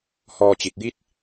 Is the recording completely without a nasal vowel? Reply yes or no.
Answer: yes